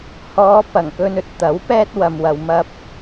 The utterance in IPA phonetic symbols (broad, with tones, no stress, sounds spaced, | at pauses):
h ɔː˨˧ p ɐ˨˩ ŋ k ɵ˧ n ɵ˧ t̚ t̪ ɐ˨˥ w p ɛː˥ t̚ w ɐ˧ m w ɐ˧ w m ɐ˧ p̚